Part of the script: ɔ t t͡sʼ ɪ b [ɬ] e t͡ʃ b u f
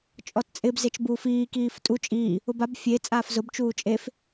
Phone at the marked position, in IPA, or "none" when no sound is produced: z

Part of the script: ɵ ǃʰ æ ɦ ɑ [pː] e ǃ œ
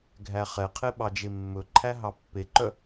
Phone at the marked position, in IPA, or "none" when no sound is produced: pː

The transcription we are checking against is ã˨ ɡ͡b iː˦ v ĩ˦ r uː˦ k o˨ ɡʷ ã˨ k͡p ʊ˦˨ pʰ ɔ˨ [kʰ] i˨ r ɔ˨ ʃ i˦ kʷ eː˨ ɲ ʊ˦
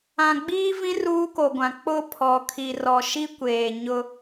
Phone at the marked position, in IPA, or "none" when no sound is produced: kʰ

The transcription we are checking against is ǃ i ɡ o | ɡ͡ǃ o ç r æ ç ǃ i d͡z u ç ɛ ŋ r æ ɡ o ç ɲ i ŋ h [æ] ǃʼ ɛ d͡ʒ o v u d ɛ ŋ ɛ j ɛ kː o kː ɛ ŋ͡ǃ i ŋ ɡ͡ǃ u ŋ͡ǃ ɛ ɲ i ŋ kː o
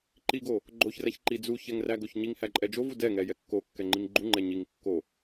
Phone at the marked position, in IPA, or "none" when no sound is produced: æ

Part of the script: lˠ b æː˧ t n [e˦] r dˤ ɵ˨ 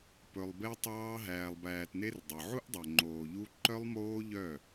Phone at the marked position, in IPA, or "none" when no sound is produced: e˦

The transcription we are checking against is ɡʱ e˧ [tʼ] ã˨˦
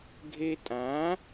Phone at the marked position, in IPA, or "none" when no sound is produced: tʼ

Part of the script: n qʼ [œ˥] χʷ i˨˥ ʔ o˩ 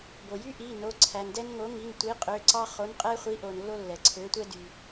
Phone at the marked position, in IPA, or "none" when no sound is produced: ɛ˥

